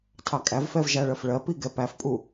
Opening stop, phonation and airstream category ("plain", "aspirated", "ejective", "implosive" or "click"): aspirated